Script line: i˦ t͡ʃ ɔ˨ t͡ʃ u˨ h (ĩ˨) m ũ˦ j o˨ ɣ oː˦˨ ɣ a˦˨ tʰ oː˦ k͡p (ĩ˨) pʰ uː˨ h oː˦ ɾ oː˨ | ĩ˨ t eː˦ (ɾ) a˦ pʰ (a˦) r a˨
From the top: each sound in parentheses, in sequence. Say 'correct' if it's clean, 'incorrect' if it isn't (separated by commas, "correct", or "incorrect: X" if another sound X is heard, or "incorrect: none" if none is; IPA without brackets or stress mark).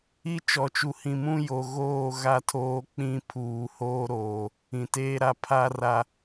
correct, incorrect: ĩ˦, correct, correct